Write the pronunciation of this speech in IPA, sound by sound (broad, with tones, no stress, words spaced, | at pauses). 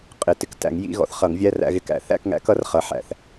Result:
qʼɪ˨˩˦ tɪ˩˥k tæ̰˨˩˦ŋjḭ˧˥˧ ɣɔ̰˩˥θχʌ˨˩˦ŋvʲæ˧˥˧ ræ̰˧ɣɪ˧kæ̰˨˩˦θæ̰˧˥˧k ŋæ̰˩˥kʌ˩˥rχʌ˩˥ ħæ̰˨˩˦θ